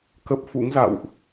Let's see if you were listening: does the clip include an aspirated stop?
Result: no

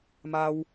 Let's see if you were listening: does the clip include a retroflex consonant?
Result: no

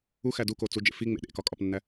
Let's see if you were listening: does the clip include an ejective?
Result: yes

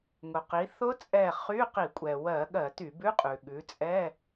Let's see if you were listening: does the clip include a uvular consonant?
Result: yes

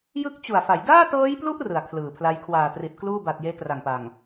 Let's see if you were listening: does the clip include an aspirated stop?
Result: yes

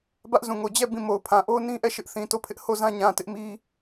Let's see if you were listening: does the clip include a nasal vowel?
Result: yes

